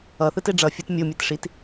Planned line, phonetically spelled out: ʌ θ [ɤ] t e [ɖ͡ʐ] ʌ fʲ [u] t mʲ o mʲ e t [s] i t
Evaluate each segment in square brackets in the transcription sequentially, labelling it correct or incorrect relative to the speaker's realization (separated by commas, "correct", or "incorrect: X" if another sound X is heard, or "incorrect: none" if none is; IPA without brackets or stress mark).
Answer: incorrect: ɯ, correct, incorrect: o, incorrect: ʂ